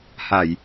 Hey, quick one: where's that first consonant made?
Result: throat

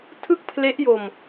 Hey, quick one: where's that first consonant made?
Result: tongue tip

